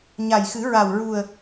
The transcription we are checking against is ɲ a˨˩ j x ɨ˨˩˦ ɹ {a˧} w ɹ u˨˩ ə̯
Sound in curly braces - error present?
yes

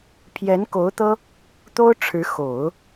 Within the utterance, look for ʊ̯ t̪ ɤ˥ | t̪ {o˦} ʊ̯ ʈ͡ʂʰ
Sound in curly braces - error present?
yes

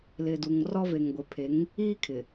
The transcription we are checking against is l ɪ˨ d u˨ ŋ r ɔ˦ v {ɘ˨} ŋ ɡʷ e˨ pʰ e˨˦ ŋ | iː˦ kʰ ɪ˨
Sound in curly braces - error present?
yes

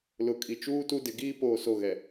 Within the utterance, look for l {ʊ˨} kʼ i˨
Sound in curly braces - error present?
no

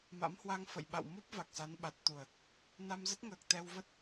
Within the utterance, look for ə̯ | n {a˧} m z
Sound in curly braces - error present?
no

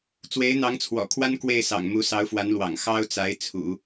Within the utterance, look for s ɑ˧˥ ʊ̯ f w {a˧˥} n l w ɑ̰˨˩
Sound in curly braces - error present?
no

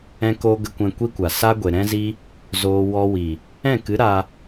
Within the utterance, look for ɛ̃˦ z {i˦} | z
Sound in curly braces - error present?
no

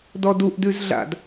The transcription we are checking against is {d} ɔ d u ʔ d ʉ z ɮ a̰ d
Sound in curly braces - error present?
no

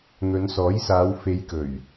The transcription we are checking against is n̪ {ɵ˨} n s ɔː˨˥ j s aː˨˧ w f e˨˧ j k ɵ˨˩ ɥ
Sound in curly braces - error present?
yes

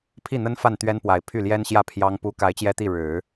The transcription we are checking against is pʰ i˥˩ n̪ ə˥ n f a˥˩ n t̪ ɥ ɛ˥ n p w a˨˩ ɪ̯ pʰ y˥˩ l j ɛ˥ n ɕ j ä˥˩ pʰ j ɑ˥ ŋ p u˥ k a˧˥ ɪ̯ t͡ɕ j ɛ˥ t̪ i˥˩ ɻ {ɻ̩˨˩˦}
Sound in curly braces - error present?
no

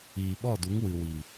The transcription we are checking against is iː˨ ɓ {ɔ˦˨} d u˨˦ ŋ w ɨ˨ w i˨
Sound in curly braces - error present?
no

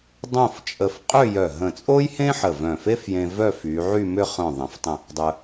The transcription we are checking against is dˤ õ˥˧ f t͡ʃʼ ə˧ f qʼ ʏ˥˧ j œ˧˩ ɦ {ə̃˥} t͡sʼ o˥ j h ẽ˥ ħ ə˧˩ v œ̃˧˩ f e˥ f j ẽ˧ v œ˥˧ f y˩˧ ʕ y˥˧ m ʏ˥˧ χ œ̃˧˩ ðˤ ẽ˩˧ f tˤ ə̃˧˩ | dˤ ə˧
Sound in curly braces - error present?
yes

